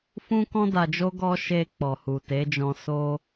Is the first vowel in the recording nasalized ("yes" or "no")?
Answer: yes